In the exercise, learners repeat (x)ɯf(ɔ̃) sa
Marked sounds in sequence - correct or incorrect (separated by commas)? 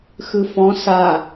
correct, correct